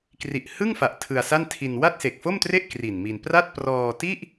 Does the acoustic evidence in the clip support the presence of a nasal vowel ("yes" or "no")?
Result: no